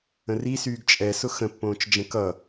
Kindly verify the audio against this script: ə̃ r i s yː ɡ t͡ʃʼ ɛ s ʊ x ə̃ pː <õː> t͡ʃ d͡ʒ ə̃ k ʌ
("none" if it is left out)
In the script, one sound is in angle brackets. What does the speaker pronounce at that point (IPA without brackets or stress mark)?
õː